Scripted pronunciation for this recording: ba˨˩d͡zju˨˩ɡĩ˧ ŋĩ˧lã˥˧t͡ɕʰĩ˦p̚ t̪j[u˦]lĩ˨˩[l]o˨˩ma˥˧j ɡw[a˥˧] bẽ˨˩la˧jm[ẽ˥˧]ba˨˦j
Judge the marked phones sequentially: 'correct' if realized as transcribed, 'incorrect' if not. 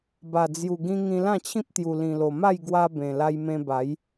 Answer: incorrect, correct, incorrect, incorrect

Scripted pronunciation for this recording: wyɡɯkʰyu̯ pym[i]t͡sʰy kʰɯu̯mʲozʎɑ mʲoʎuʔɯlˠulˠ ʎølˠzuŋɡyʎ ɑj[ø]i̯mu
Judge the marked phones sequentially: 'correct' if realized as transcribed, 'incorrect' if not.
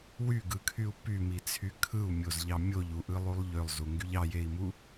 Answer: correct, incorrect

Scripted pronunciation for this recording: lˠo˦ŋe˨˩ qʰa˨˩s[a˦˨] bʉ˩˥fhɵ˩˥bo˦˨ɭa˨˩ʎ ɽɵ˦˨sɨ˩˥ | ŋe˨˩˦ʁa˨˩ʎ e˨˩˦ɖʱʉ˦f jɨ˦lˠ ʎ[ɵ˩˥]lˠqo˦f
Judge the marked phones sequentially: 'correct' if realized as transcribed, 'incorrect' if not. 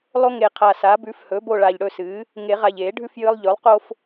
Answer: incorrect, correct

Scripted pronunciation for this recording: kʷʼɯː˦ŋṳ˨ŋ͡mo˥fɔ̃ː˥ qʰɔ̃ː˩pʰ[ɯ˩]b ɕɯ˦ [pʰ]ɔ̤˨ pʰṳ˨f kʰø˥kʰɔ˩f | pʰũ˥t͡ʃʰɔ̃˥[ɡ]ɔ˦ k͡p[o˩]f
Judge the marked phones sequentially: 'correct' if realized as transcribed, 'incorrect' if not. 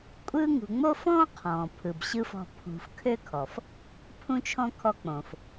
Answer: correct, incorrect, incorrect, incorrect

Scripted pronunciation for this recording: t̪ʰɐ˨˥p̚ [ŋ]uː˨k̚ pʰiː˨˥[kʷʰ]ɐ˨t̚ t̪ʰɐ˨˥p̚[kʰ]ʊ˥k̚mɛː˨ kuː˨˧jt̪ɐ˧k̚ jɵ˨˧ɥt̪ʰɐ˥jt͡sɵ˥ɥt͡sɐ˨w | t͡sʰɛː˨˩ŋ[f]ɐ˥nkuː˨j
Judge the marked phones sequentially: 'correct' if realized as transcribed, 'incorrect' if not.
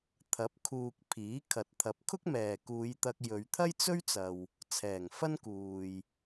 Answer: incorrect, incorrect, correct, correct

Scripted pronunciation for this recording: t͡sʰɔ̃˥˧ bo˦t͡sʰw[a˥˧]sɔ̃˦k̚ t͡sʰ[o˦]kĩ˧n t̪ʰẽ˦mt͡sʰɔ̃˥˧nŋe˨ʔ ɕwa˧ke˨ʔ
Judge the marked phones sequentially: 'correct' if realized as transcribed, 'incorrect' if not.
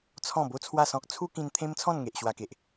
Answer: correct, incorrect

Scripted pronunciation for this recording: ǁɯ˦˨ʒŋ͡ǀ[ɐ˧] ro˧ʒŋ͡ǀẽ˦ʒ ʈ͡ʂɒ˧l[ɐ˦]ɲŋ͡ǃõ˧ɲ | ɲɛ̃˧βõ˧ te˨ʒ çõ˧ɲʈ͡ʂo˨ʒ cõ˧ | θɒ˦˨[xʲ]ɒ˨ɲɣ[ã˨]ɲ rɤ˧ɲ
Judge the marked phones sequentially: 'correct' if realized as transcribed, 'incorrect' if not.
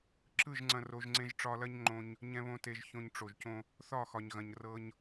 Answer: incorrect, correct, incorrect, incorrect

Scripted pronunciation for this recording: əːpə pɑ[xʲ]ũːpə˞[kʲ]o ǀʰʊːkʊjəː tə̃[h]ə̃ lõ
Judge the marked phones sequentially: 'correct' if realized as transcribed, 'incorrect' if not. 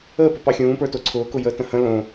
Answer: correct, incorrect, correct

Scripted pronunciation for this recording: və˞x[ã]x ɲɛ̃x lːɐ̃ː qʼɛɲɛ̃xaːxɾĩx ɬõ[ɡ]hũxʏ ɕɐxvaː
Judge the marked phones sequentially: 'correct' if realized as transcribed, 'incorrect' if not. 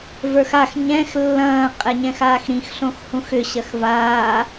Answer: incorrect, incorrect

